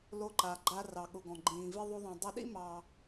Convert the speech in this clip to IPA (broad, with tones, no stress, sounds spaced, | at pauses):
l o˧ ǃ a˩ ɡ͡ǃ a˧ r ɑ˩ ɠ ʊ˩ ɡ ɔ̃˩ ɡ͡ǃ ĩː˩ v i˧ ðˤ o˧ ðˤ ɛ̃˩ dˤ ə˧ ɗ ḭ˥ m ɑ˩